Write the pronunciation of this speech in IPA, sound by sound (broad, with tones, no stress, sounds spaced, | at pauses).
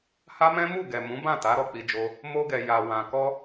h a˦ m ɛ̃˦ m u˦˨ ɡ ɛ˨ m ũ˨˦ b ã˦˨ t a˨˦ ɾ ɔ˦ k͡p i˧ d͡ʒ o˧ | m o˧ ɡ ɛ˨ j a˨ w ã˧ k ɔ˧